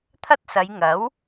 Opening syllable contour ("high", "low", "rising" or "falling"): high